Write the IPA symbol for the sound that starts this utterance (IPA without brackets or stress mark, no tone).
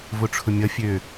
v